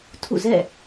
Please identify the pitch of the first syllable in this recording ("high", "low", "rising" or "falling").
falling